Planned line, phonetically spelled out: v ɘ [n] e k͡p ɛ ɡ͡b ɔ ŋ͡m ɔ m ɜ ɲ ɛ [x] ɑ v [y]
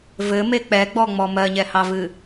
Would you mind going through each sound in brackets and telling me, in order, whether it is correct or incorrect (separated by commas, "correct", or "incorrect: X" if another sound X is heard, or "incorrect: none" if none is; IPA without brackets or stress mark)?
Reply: incorrect: m, incorrect: h, incorrect: ɨ